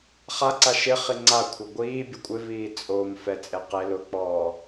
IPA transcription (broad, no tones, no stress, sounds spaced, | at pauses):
χ a ǀ a ʃ ɪ χ i ŋ͡ǀ a kʷʰ ɪ ɡʷ iː bʲ ʊ kʷʼ ɪ v iː t͡sʼ o m f ɛ t͡sʼ e q e l ʊ k͡p ɔː